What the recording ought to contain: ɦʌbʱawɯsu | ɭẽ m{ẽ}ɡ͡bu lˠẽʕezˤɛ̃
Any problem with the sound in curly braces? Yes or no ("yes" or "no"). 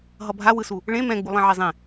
yes